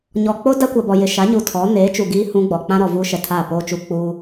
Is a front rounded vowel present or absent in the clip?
absent